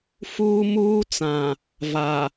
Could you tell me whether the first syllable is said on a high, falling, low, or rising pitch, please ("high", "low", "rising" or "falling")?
high